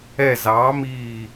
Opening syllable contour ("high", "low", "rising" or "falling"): falling